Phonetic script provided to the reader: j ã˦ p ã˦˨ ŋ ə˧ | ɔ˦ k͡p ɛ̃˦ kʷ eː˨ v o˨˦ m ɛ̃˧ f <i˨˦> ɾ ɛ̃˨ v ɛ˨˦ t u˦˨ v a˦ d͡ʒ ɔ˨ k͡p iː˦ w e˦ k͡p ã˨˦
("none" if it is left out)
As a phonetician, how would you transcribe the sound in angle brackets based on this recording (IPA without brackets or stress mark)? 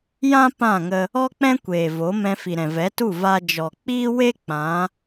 i˨